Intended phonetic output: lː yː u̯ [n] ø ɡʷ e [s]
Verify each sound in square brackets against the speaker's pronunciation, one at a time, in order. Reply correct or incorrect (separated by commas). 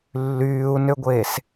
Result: correct, correct